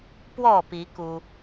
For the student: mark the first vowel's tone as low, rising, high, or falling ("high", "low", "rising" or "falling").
falling